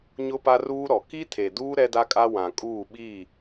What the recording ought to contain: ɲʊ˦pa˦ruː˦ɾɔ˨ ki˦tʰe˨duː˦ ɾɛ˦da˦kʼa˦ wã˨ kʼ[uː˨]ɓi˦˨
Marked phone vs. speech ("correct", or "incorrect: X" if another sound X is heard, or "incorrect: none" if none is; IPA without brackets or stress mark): incorrect: uː˦˨